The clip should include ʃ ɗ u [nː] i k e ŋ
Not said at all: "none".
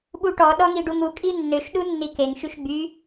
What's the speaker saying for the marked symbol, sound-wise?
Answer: nː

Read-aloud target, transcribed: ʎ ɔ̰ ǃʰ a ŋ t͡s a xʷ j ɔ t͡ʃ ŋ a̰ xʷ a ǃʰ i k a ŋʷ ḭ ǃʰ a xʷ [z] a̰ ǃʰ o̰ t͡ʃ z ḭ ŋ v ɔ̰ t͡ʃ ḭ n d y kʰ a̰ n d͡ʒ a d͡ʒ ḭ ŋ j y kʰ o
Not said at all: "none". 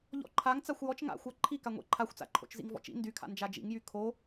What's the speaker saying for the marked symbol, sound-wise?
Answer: t͡s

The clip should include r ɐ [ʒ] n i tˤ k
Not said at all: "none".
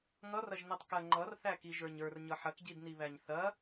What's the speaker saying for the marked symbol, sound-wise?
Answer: ʒ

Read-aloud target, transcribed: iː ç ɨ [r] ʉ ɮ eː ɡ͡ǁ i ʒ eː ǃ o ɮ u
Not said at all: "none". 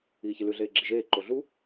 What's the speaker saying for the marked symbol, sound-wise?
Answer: l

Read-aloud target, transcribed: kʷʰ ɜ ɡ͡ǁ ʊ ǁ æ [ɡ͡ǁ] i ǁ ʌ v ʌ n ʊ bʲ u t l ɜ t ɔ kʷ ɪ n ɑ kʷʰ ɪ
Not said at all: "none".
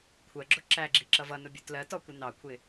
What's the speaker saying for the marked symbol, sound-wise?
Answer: ɡ͡ǁ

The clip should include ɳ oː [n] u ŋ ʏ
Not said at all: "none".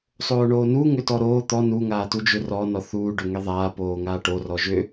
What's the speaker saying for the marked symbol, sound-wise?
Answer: n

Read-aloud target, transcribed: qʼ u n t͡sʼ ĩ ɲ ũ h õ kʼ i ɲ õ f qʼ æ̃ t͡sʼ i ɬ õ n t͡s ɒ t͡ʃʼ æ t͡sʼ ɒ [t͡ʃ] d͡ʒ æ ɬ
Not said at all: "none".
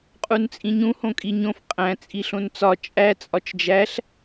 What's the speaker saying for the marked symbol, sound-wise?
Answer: t͡ʃ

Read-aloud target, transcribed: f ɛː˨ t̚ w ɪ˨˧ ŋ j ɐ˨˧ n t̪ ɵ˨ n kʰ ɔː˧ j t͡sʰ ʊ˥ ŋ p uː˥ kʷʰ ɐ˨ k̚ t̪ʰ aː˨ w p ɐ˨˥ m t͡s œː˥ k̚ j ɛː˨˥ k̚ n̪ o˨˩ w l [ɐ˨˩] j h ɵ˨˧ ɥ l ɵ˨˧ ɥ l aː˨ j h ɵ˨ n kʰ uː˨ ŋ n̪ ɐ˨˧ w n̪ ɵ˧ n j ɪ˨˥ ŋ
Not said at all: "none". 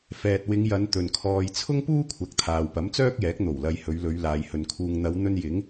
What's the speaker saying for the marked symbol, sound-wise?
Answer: ɐ˨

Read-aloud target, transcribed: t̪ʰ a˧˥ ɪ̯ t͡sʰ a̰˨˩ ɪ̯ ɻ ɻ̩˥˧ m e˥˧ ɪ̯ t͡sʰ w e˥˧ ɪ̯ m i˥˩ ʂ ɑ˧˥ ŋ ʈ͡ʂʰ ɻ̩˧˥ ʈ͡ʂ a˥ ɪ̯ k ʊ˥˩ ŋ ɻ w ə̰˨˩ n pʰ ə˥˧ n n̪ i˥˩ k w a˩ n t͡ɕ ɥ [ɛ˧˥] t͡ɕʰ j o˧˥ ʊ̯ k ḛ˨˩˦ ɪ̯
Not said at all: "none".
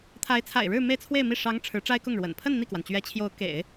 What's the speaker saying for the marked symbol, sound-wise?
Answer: ɛ˧˥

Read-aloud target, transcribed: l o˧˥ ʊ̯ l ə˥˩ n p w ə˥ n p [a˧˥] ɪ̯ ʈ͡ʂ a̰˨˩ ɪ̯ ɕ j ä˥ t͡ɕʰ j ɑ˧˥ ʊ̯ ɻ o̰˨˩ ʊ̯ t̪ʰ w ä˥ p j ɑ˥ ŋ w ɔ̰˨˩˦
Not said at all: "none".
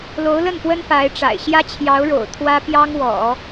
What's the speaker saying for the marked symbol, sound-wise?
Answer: a˧˥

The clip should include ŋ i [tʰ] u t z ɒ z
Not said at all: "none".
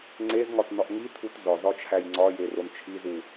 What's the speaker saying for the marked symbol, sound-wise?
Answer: tʰ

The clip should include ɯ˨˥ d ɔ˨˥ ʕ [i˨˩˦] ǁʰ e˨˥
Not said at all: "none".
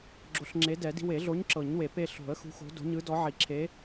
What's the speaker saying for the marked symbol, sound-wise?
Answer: i˨˩˦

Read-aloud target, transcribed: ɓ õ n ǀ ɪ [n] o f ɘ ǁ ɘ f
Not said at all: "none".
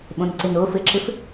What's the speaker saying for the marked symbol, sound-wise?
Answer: n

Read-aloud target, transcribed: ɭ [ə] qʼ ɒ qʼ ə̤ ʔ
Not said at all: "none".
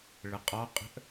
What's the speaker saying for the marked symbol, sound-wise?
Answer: ə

